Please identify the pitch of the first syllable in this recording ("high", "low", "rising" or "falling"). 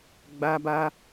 high